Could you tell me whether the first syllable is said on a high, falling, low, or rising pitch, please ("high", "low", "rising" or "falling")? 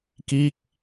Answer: falling